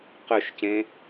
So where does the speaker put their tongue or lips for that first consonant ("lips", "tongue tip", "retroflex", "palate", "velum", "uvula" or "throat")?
uvula